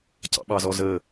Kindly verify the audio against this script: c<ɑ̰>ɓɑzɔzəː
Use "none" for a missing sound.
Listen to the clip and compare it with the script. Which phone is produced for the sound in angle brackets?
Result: ɑ̰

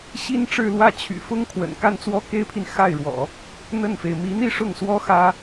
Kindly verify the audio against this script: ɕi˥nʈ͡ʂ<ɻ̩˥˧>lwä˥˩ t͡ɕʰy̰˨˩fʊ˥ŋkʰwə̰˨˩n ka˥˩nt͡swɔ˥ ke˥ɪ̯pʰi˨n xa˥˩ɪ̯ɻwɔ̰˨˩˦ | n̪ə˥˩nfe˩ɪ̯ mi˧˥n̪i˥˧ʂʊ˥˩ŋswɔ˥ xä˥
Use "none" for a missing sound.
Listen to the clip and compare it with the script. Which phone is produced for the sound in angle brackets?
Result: ɻ̩˥˧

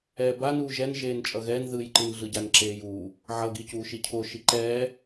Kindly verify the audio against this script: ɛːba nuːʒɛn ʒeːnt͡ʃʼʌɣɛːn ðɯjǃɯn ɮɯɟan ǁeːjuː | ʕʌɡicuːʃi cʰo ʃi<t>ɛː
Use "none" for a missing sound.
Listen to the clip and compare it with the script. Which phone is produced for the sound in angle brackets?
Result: ǃ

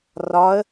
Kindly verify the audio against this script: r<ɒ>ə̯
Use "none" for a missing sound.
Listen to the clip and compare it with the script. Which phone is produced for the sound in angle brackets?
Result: ɒ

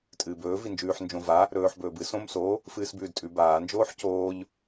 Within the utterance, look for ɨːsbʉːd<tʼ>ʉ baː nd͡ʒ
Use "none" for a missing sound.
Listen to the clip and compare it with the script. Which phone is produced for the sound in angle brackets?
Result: tʼ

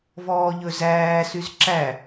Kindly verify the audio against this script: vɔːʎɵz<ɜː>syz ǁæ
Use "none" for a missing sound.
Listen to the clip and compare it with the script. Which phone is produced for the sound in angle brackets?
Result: æː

